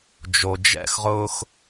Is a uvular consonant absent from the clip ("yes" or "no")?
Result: no